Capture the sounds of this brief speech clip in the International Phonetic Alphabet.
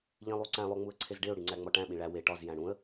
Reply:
ʎ ĩ lˠ u ǀ æ̃ lˠ o ŋ͡m u ə̯ ǀʰ e z ɖ e ʊ̯ ɽ i ŋ͡ǀ æ ŋ͡m ɒ ʈ æ̃ ɓ ĩ ɭ æ w e ʈ ɒ z j æ̃ ɽ ũ ə̯

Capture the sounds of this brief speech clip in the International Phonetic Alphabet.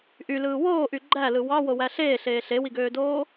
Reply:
ʔ y l ɯː w oː ʔ y ɡ͡ǃ æ l ɯ w ɑ w o w æ ɬ eː ɬ eː ɬ e w i ɡ øː d oː

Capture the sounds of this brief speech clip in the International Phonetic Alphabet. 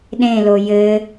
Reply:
ɗ ẽ l o j ɘ

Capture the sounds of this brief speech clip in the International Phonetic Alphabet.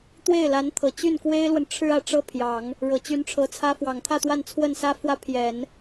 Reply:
t̪ w e˥˩ ɪ̯ l a˧˥ n t̪ʰ ɤ˨˩ t͡ɕ y˥˩ n k w e˥ ɪ̯ l w ə˨ n ʈ͡ʂʰ ɻ̩˥ ä˨˩ ʈ͡ʂ ɤ˥ pʰ j ɑ˨˩˦ ŋ | ɻ ɤ˨˩ t͡ɕ y˧˥ n ʈ͡ʂʰ ɤ˧˥ t͡sʰ ä˥ f w ɑ˨˩ ŋ t̪ʰ ä˥˧ t̪ w a˥˧ n t͡sʰ w ə˥˩ n s ä˥ f w ä˥ pʰ j ɛ˨˩˦ n

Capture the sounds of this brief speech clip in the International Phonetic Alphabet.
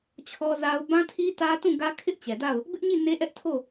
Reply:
t͡ɕʰ ɔ˦ z a˦ ʊ̯ b ã˦ tʰ i˦ t ä˦ t ũ˦˨ ɡ ä˦ kʰ ɪ˦ ʔ t͡ɕ ɛ˨ d a˦˨ ʊ̯ | b ɪ˦ ʔ ɲ i˦˨ n e˦ ʔ ɛ˦ ʔ tʰ o˦˨

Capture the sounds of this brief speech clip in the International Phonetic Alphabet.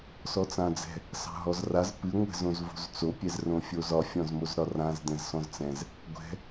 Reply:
s ɔ t͡s ã d͡z ɛ̤ | s ɑ̤ ɦ ɔ z r a z p ɨ ŋʷ ɛ̤ z õ z v o̤ z t͡s o pʲ ɛ z r õ fʲ o z ɒ fʲ ɔ̃ z m o z ɾ ɒ r ã z d̪ ɛ̃ z s ɔ̃ z t͡s ɛ̃ z | ɡʷ ɛ̤

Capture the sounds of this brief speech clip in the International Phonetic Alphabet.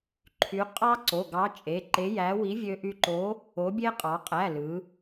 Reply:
ǃʰ y˩˧ qʼ ɑ˧ ǀ o˩˧˩ ɡ ɑ˨˥ t͡ʃʼ e˩˧˩ ǃ e˨˥ j æ˨˥ w i˨˥ vʲ ø˧ ʔ y˧ ǃ o˨˥ | o˨˥ bʲ e˧ qʼ ɑ˩˧ qʼ æ˩˧˩ l ɯ˩˧

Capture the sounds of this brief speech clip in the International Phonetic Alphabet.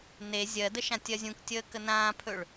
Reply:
n e zʲ ɜ d ə ʃ ã tʲ ɜ zʲ ũ k tʲ əː k ə n ãː pʰ ɵ ɭ

